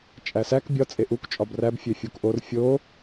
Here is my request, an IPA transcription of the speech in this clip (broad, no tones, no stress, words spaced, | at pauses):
t͡ʃʼæsæk bʲɒ t͡sʼeʔuk t͡ʃʼɒbræb fʲefʲukʔor fʲo